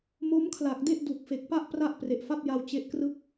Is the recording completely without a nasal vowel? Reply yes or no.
yes